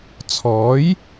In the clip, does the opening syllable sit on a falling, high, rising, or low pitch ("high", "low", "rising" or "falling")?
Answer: rising